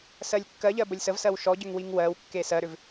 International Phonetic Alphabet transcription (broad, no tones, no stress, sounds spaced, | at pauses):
s ɜ lʲ kː ɜ ʎ ɜ b ə lʲ s ə v s ɜ w ʃ ɔ ɟ ʏ ŋ w i ŋ w ɜ w kː e s ɜ ɾ ʏ v